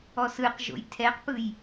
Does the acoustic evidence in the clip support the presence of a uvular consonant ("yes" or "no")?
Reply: yes